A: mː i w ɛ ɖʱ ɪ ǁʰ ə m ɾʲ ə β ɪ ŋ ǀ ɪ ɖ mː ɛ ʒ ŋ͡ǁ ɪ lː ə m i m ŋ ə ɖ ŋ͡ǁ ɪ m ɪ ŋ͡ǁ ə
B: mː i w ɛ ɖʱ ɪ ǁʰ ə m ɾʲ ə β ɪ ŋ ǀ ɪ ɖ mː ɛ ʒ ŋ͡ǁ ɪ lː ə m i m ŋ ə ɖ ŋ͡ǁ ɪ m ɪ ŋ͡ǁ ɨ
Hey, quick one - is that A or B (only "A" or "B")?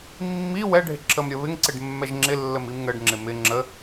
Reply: A